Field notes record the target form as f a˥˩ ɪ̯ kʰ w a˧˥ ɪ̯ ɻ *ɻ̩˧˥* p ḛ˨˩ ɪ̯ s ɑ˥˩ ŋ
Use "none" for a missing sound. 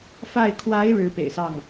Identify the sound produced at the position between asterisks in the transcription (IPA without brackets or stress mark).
ɻ̩˧˥